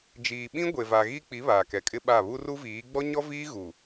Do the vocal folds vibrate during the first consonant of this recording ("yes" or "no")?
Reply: yes